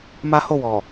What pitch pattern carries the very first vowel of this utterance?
high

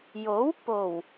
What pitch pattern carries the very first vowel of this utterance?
rising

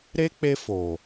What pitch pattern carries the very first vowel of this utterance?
high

